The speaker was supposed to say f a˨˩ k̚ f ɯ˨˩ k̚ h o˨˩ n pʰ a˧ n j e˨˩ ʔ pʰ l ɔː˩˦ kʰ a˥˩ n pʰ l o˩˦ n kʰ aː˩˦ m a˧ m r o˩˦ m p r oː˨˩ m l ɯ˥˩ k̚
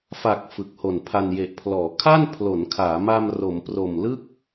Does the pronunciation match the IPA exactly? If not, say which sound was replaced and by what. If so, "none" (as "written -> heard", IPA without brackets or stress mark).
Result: oː˨˩ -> o˨˩